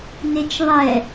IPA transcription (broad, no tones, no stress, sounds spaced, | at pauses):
n e t͡ʃ ðˤ ɛ